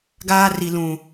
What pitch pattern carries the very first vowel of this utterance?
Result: high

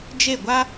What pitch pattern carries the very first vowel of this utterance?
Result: falling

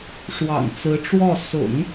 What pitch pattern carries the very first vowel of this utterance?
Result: low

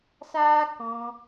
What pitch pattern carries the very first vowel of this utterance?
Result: high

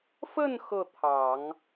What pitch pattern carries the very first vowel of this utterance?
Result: falling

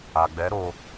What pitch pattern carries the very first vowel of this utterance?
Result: low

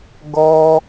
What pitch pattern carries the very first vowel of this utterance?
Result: high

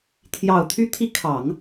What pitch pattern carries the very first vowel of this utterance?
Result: low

